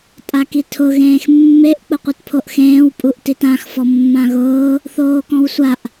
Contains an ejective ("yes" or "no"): yes